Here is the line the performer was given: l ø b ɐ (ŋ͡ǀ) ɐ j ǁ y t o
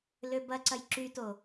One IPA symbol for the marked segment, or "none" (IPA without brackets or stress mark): ǀ